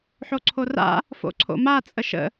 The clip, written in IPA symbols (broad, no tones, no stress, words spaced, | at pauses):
ħoǀʰora̰ | fo̰ǀʰo̰ma t͡sʼəʃə̰